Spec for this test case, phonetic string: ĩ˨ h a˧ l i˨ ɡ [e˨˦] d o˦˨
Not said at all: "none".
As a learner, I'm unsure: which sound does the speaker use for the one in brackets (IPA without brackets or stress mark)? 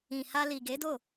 e˨˦